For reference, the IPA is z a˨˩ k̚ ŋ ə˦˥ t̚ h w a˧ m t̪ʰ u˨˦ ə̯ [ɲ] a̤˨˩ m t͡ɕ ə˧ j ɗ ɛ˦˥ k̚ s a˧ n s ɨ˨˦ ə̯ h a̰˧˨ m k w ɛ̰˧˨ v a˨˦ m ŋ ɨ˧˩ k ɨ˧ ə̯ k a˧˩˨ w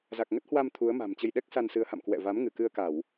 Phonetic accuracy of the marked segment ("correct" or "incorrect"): incorrect